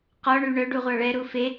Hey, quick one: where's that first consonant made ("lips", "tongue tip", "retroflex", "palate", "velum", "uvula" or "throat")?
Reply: uvula